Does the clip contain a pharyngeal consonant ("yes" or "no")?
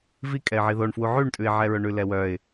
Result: yes